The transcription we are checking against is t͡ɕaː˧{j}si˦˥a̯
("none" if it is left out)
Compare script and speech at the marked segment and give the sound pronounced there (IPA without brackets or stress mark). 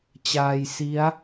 j